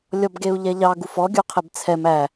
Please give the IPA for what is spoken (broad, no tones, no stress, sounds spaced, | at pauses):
lʲ ɔ b ɡ e u̯ ʎ ɛ ʎ ɑ ɡ u f ɔ ɡʲ u qʰ e b t͡sʰ ɛ m æ